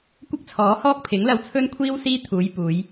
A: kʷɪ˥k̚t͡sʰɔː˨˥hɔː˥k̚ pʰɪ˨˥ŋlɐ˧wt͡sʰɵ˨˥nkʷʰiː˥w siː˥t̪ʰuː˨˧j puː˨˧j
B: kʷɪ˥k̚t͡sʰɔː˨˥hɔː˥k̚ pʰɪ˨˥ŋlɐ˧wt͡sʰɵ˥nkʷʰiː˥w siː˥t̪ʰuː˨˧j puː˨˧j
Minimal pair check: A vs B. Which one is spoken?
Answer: B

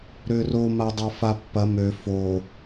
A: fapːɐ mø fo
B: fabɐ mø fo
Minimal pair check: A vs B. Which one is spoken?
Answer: A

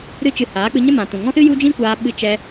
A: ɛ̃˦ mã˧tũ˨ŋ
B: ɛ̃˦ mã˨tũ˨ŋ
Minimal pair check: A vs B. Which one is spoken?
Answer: B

